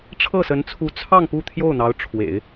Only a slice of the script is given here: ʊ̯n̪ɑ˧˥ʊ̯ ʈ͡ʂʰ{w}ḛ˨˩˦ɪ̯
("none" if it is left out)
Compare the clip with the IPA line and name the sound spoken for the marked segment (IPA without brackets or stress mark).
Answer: w